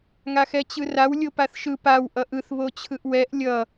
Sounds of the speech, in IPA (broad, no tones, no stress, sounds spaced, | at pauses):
ŋ a x ɛ t͡ɕ ɯ r a w lʲ o p a θ ʃ ɯ p a w ʔ ʌ ʔ ɯ θ β o t͡ɕʰ ɯ ʔ w ɛ ʔ lʲ ʌ